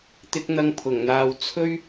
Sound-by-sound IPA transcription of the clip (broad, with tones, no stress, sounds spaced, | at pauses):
t̪ ɪ˧ k̚ n̪ ɐ˧ ŋ pʰ ʊ˨˩ ŋ n̪ aː˨ w t͡sʰ ɵ˥ ɥ